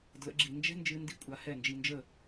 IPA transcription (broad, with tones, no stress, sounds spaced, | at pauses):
d l ə̰˩˥ ɡ͡ǁ i˩ n d͡ʒ ɛ̤˥ n d͡ʒ ɨ˧ n d i˥ kʷʼ a˧ h ɛ˥˩ n d͡ʒ i˧ n d͡ʒ ə˥˩